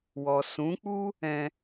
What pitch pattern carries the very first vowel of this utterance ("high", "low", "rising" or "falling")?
low